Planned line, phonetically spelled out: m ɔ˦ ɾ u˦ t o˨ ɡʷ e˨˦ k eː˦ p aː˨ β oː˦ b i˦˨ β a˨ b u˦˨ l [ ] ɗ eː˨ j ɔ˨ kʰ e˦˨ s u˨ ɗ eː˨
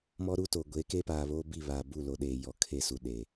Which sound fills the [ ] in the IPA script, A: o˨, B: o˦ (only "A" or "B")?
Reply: A